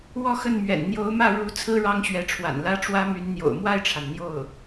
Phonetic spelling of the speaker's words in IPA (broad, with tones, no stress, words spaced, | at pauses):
wɔ˥˧xə˥˩nmɥɛ̰˨˩n n̪jo˧˥ʊ̯mä˥˩ ɻu˧˥ t͡sʰɹ̩˥ ɻɑ˥ŋɕɥɛ˧˥ʈ͡ʂʰwa̰˨˩n lä˥ʈ͡ʂwä˥my˧˥n n̪jo̰˨˩ʊ̯mwa˥˩ɪ̯ʈ͡ʂʰa˩n n̪jo˥˩ʊ̯